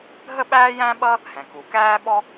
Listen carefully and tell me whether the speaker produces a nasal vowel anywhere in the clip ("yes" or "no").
yes